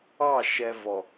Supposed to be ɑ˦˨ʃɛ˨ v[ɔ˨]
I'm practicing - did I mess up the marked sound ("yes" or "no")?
no